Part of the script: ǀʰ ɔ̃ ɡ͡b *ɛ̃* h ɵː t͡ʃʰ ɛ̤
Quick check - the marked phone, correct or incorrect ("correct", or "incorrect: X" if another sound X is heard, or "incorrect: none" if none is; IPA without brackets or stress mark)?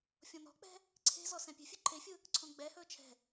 incorrect: ɛ